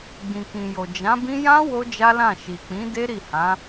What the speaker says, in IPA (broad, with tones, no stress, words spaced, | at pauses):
ɡ͡bĩ˨kĩ˨jo˨ d͡ʒã˨˦bĩ˦ jã˦ wo˦d͡ʒa˦lã˦˨ ʃi˨k͡pĩ˨˦de˦ ɾi˦˨hã˨˦